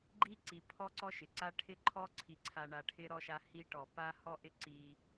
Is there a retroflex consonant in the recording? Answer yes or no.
yes